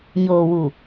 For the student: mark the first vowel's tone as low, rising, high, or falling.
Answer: low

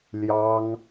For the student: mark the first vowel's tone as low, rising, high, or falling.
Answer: high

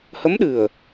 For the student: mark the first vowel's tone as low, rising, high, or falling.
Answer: rising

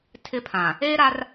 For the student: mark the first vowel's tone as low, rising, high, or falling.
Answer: high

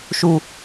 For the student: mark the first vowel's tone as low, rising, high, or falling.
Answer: low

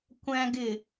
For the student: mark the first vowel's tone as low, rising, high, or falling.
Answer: high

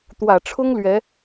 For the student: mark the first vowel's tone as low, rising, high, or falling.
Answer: low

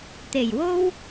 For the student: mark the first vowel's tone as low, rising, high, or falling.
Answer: low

